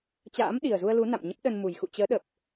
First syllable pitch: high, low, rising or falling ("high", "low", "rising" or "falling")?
rising